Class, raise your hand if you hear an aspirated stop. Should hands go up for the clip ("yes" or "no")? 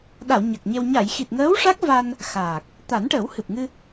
no